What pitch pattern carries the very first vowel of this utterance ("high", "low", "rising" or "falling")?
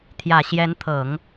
low